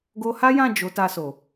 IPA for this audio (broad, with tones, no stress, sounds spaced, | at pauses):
ɡ o˧ h a˦ j ã˦˨ d͡ʒ o˨˦ t a˧ s o˨